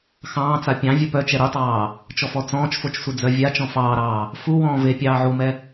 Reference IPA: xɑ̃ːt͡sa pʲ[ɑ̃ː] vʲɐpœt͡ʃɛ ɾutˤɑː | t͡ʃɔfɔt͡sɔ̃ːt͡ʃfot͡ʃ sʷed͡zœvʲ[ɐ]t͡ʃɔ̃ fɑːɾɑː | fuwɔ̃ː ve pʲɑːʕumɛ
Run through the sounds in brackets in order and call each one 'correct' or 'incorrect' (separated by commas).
incorrect, incorrect